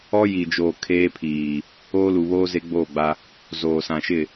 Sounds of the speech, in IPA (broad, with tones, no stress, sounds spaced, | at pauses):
ɔ˦ j i˨ d͡ʒ oː˨ kʰ eː˦ pʰ iː˨ | oː˦ l u˨ β oː˦ z e˦ ɡ͡b oː˦˨ ɡ͡b a˦ | z oː˨ s ã˨ ʃ ɪ˦˨